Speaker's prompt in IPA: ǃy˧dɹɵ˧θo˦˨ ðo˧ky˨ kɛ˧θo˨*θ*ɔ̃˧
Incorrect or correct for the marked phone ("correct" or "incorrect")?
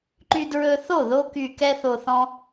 correct